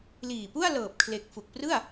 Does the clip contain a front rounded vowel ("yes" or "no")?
no